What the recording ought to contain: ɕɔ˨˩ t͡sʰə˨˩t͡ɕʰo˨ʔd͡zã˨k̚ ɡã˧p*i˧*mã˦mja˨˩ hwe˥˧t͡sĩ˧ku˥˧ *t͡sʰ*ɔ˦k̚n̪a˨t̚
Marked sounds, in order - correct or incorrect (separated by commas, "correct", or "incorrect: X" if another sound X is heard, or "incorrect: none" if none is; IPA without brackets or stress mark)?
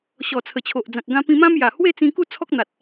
incorrect: ĩ˧, correct